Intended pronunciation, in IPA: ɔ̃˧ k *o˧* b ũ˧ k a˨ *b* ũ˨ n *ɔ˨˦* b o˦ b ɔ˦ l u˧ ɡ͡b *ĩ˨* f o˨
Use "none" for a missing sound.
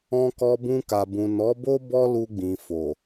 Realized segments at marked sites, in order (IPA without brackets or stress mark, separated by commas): ɔ˧, b, ɔ˨˦, ĩ˨